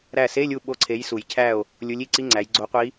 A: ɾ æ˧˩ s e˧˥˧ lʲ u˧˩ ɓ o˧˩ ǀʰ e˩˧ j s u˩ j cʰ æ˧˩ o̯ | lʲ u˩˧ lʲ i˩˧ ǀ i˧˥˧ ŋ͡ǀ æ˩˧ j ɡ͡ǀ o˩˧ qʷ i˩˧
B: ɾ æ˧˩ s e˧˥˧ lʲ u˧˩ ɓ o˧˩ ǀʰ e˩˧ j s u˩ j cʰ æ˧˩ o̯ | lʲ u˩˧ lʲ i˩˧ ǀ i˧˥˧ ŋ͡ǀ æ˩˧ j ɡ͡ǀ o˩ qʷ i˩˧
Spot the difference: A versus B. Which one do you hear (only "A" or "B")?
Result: A